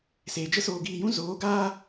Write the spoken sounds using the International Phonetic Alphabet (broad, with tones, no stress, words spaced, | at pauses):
seː˨d͡ʒə˦ soː˧ɡiː˧jũ˦ zoː˨˦ɡaː˦